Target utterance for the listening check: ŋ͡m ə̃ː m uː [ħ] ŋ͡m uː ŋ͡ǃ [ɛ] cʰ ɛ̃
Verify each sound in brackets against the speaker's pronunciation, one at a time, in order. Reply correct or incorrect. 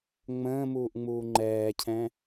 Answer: incorrect: ʔ, incorrect: ɛː

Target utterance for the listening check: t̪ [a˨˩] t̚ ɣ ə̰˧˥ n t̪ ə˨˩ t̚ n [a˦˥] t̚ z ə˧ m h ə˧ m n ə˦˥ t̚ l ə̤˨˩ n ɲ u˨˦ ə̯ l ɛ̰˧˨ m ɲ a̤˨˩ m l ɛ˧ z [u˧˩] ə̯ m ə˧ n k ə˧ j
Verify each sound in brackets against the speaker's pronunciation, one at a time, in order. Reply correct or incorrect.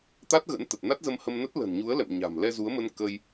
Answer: incorrect: a˦˥, correct, incorrect: u˨˦

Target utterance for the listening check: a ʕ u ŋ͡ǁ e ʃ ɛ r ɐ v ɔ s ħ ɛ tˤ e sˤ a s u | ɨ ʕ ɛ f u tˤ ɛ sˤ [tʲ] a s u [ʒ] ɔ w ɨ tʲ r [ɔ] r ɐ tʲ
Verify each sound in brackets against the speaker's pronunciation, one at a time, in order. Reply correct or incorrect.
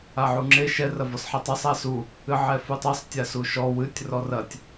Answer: correct, incorrect: ʃ, correct

